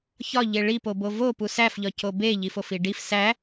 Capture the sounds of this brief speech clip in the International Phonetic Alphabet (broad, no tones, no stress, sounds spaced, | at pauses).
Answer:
ç ɒ ʎ e ɭ i p o b o v o p u s æ f ʎ ɒ c o b e ʎ i f o f i ɖ i f s æ